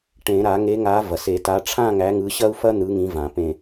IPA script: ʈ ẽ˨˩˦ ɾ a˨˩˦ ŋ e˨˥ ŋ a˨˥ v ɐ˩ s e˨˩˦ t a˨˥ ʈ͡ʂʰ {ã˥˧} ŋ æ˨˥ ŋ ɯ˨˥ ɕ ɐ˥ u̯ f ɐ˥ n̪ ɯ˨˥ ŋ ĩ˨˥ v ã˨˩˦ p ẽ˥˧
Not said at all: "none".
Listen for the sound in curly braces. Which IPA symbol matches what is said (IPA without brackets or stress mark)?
ã˥˧